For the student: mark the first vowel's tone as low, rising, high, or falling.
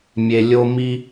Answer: low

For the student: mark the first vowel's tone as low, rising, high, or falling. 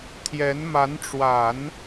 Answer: rising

